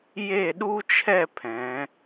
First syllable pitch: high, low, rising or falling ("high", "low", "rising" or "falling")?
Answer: falling